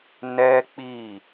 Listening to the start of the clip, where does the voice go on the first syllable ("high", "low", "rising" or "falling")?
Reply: high